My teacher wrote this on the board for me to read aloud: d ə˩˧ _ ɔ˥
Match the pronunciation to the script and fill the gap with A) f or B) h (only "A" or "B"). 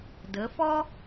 A